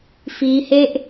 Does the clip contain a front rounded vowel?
no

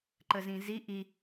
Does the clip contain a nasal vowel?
yes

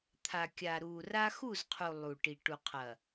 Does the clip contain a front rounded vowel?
no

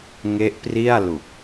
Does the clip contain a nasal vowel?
no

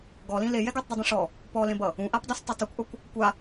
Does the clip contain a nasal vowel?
yes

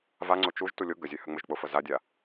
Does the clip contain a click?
yes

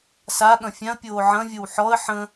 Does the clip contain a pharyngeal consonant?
yes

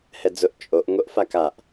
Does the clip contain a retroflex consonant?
no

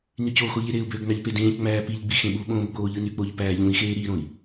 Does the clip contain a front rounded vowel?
yes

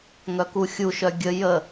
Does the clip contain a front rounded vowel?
yes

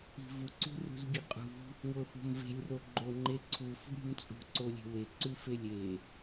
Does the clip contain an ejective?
yes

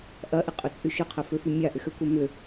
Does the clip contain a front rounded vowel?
yes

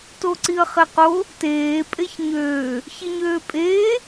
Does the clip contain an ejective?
yes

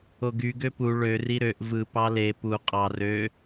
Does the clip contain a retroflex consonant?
yes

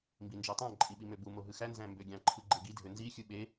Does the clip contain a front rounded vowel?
yes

